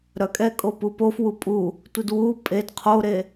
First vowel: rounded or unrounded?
rounded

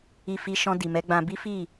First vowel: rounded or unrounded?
unrounded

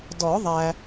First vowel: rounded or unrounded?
rounded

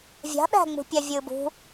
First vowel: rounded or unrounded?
unrounded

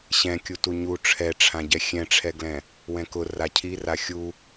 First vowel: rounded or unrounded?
unrounded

